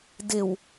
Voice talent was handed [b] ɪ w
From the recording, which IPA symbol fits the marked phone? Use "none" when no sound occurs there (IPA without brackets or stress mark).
d